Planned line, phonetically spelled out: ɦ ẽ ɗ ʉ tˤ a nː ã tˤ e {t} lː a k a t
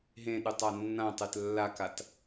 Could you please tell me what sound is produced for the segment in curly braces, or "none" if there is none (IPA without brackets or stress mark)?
t